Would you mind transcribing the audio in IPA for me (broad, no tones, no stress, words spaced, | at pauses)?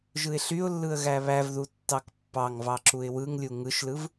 ʒɯɪ̯ɬyʊ̯lːɯə̯ ɣæβævðu tːɑkpːɑŋvɑ ǁuɪ̯wɯŋlʲu ŋɯʃlɯv